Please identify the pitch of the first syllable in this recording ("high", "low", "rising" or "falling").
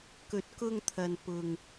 rising